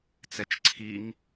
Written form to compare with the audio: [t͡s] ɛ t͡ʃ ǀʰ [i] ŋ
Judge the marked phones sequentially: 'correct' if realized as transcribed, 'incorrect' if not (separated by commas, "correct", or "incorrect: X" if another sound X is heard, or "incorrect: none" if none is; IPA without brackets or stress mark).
correct, correct